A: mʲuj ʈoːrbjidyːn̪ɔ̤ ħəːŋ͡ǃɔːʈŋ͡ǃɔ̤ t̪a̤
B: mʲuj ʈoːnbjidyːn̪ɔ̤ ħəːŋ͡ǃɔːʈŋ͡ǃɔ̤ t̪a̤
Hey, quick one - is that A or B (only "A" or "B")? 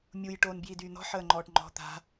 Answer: B